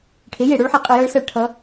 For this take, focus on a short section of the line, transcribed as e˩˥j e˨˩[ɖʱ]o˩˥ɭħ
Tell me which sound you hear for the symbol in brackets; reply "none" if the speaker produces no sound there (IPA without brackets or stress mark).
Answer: ɽ